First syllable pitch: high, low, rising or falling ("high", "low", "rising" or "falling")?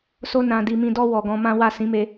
high